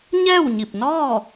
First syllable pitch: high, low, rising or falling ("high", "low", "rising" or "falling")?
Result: falling